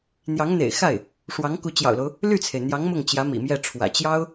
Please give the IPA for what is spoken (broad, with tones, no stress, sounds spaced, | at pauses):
n̪ j ɑ˧˥ ŋ n̪ ḛ˨˩ ɪ̯ x a˥˩ ɪ̯ | ʂ w ɑ˧˥ ŋ k u˧˥ t͡ɕ j ɑ̰˨˩ ʊ̯ l o˦ ʊ̯ | l y˥˩ t͡sʰ e˩ ɪ̯ n̪ j ɑ˧˥ ŋ m ʊ˥˩ ŋ t͡ɕ j ä˧˥ m ḭ˨˩ m j ɛ˥˩ ʈ͡ʂʰ w ä̰˨˩ t͡ɕ j ɑ˥ ʊ̯